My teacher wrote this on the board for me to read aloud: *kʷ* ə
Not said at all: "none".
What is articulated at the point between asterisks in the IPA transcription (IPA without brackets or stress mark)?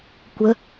kʷ